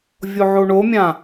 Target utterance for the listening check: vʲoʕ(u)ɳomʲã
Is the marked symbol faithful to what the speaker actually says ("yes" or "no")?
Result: no